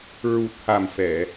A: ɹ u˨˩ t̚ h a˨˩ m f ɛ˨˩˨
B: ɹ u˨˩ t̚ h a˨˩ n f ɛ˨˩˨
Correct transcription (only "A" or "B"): A